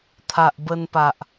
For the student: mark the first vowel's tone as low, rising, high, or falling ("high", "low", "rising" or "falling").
low